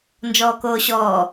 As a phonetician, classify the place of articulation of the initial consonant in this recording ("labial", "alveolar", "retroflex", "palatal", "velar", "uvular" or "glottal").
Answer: alveolar